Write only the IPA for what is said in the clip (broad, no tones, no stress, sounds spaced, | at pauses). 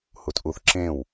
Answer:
h u t ʔ u θ ǁ ẽ w